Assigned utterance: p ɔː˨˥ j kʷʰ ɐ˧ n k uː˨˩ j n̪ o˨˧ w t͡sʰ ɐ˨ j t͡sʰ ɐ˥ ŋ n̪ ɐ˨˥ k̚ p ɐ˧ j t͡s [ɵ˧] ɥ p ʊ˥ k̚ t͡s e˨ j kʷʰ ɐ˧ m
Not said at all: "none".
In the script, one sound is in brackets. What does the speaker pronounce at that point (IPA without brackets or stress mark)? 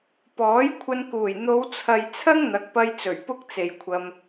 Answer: ɵ˨˩